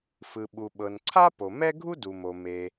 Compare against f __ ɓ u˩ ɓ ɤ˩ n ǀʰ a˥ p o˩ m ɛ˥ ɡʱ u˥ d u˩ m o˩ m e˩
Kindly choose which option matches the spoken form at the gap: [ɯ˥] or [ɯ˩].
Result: ɯ˩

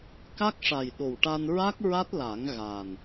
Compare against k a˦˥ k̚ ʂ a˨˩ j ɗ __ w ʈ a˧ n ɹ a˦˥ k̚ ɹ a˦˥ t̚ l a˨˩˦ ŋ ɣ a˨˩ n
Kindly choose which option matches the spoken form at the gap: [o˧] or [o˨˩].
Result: o˨˩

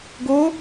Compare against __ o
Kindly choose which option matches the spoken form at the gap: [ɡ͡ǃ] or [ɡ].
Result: ɡ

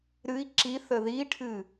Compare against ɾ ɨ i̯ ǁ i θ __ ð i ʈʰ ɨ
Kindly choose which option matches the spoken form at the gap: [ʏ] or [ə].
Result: ə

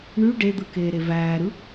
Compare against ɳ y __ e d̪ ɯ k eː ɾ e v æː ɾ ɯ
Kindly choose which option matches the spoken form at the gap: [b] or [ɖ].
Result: ɖ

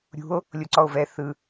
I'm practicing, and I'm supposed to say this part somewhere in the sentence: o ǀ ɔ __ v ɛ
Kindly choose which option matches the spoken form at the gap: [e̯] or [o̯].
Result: o̯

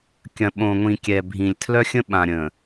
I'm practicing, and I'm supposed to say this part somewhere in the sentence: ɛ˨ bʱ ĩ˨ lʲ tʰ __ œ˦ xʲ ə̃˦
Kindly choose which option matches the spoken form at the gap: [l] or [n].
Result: l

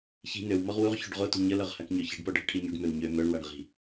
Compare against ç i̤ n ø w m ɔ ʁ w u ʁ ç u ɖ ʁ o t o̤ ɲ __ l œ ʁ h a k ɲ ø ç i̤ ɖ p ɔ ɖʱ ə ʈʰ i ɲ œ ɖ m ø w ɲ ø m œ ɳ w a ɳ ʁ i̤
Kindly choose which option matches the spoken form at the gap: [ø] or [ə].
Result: ə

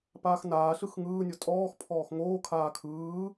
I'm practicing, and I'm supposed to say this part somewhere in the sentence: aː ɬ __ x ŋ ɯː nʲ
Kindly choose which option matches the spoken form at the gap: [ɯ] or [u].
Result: ɯ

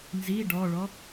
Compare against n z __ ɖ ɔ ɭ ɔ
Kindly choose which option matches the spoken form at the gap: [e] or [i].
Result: i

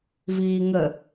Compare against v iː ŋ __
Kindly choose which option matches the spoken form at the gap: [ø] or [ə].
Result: ə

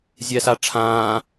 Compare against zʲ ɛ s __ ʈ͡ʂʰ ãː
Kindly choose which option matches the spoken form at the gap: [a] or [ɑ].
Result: a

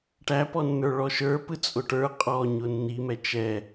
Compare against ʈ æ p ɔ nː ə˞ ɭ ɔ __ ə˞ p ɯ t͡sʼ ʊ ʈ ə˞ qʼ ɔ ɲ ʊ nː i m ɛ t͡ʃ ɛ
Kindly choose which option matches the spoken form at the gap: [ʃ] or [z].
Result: ʃ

